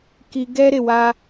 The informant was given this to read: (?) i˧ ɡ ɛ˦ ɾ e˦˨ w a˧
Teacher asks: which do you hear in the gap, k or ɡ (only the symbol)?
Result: k